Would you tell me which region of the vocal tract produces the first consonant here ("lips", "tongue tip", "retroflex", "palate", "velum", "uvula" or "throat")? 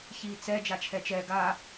palate